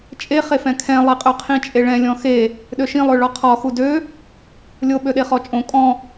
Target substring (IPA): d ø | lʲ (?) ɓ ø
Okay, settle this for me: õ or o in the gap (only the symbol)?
o